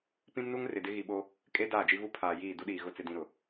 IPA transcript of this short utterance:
p ĩ˦ m n u˦ ŋ r ɪ˨ d ɪ˦ ɣ i˨ ɓ o˦ | kʼ e˦ d aː˦˨ d͡ʒ i˦ v u˦ pʰ aː˨ j iː˦˨ d u˦ ɗ iː˨ ɣ ʊ˦ t͡s ɪ˦ d ĩ˦ ɾ ʊ˨

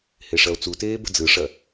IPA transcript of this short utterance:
h e ʂ ɐ o̯ t͡s u t eː b ə̤ d͡z ɯ ʂ ɐ

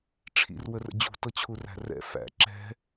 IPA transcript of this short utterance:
ʈ͡ʂʰ ḭ r w ə r ə̰ d͡ʑ ṳ t ɤ t͡ɕʰ u r æ̤ r ɛ̰ f æ̰ ǁ ɛ̤

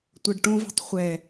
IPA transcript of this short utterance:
tʷ ɤ ɖ ʈ õ v ɛ̤ tˤ χʷ ɛ

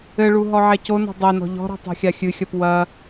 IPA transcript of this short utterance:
ɘ ɭ u ɦ ɔ ʕ ɛ c o n ɔ̤ dˤ e n ɔ̤ ʎ ɔ̤ ɾ ɔ̤ tˤ ɛ̤ xʲ a xʲ ɨ xʲ ɐ p w ɐ

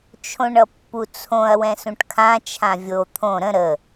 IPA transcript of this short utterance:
t͡ʃʰ õ ɳ ʌ pː u t͡sʰ õ ɐ̯ w ɛ̃ s ũ ʈ kʰ ã t͡ʃʰ ã vʲ o t̪ʰ õ ɾ ə̃ ɾ ə

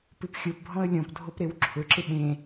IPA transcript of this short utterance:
p ɨ p xʲ o p bʱ ɔ̃ ə̯ lʲ ɔ̃ p dʱ o p ɾ e w ǁʰ ʊ ǁ ɪ ɓ ẽ

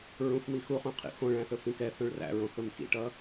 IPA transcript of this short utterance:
ɹ ũ f m i x u χ ũ qʰ ḭ x õ ɭ æ̃ θ ɵ f ĩ k ɛ θ õ ɭ r æ̰ ɹ õ x ɵ m x ḭ ʈ ʌ

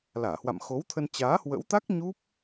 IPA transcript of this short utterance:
l aː˧˩ h w a̰˧˨ m x o˨˦ w t̪ʰ ə˧ n t͡ɕ aː˨˦ h w ə̰˧˥ w t̪ a˦˥ k̚ ɲ u˦˥ p̚

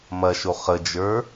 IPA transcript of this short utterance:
m ɐ ʃ o χ ə d͡ʒ ə˞

